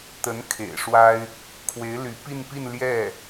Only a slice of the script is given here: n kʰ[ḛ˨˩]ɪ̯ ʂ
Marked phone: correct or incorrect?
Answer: correct